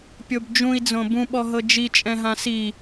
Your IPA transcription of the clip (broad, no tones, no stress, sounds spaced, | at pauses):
pʲ o b d͡ʒ ũ i̯ d͡z õ b ũ ɓ ɔ ɦ ɤ d͡ʒ i t͡ʃʼ ɛ̃ ɦ ã s i